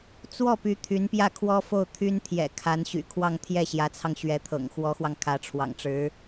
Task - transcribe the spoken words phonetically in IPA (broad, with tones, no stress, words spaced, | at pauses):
t͡swɔ˥˩py˧˥ t̪ʰy˧˥npjä˥˩kʰwɔ˥fo˥˩ʊ̯ t̪ʰy˥nt̪ʰjɛ̰˨˩ kʰa˧˥n ɕy̰˨˩kʰwɑ˥˧ŋ t̪ʰjɛ˥˩ɕjä˧˥t͡sʰɑ˧ŋ ɕɥɛ˧˥t̪ʰɤ̰˨˩ŋxwɔ˧˥xwɑ˧ŋ kʰä˧˥ʈ͡ʂʰwɑ̰˨˩ŋʈ͡ʂɻ̩˧˥